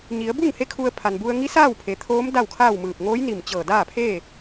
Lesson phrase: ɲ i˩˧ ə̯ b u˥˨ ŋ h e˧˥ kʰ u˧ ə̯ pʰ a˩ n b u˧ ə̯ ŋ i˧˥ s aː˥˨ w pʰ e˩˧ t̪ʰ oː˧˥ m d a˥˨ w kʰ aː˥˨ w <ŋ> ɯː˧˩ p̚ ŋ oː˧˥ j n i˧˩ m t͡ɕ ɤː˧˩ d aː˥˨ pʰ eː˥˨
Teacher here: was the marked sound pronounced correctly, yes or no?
no